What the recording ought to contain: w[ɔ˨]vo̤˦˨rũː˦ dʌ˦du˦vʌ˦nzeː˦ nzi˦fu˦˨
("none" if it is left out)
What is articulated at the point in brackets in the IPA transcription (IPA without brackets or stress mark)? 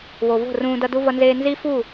o˨